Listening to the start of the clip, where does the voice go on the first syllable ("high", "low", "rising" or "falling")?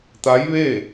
rising